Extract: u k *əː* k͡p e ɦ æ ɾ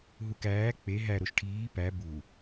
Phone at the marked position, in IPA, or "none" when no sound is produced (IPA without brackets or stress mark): æː